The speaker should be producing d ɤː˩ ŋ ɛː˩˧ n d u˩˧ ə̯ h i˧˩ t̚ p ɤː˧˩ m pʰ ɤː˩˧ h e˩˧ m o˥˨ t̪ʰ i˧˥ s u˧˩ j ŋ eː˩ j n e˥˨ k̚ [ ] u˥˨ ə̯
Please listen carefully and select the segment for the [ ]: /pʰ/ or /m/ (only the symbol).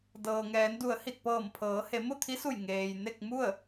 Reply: m